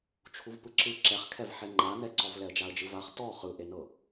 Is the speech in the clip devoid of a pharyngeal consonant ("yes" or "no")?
no